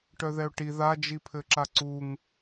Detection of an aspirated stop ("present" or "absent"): present